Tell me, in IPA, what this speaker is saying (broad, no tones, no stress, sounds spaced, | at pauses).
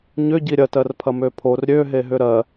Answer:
ɲ ʏ ɟ i ɾʲ ɐ t ɜ r pʰ ɐ m ø pʰ o r ɾʲ ø ɦ e ɦ ʏ ɾ ɜ